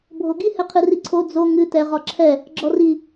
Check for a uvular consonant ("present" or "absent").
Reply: present